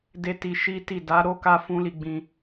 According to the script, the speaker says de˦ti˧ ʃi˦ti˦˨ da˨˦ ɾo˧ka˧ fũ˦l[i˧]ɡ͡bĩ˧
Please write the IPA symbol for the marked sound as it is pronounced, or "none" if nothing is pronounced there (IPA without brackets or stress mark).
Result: i˧